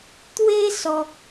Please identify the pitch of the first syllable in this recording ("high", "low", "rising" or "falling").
high